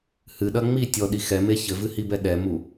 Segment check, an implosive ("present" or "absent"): present